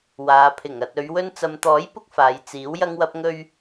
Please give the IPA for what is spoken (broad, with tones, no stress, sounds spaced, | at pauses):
w aː˨˧ pʰ ɪ˨˩ ŋ ɐ˨ t̚ ɵ˨˧ ɥ w ɵ˧ n t͡s ɐ˨ m t̪ ɔː˨˥ j p ʊ˧ k̚ f aː˨˧ j t͡s iː˨˥ w j ɐ˥ ŋ w ɐ˥ p̚ ŋ ɵ˧ ɥ